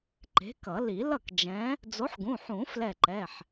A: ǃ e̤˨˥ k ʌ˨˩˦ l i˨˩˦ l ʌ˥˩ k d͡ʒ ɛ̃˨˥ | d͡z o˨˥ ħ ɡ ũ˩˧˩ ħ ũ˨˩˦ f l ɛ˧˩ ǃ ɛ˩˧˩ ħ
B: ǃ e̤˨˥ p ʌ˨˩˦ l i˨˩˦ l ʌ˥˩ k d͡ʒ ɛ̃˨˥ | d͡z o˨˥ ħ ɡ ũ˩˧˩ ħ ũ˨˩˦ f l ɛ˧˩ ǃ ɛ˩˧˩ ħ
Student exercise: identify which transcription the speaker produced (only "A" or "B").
A